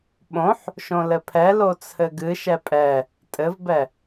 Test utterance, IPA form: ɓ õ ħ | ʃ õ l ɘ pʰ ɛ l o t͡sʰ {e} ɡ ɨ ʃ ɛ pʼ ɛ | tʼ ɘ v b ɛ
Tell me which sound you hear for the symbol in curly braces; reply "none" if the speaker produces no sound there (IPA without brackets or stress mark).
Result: ɘ